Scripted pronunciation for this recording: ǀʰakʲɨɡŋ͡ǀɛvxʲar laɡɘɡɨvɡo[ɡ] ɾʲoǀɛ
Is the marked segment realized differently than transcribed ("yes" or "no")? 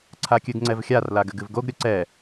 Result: no